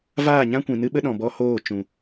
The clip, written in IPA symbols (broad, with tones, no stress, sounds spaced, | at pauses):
v aː˦˨ ɲ ã˦ kʷ ĩ˨ n ɨ˦ ɓ ə˦ ɗ ɔ̃˨ b ɔ˧ h oː˦˨ t͡ʃ ũ˨